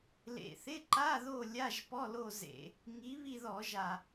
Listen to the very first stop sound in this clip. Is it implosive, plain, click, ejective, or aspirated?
click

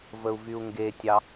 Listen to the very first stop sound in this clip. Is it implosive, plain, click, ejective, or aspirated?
plain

